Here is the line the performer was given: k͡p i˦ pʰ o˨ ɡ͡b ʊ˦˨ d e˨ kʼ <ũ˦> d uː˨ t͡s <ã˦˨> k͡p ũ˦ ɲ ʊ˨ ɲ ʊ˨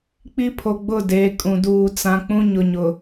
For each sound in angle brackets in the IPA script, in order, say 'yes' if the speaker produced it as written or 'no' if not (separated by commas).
no, no